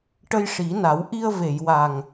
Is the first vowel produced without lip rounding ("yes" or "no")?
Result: yes